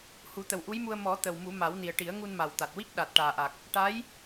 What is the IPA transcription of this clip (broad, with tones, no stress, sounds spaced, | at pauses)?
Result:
h u˨˩˦ t̪ ə˨˩ w ʔ u˧˥ j m u˧ ə̯ m ɔ˨˩˦ t̪ ə˨˩ w m u˨˩˦ m a˨˩˦ w n i˨˩ ə̯ ʈ i˨˩˦ ə̯ ŋ u˧ n m a˨˩ w t̪ a˨˩ t̚ w i˦˥ k̚ ɗ a˨˩ t̚ ʈ aː˨˩ ʔ a˨˩ k̚ | ʈ a˧˥ j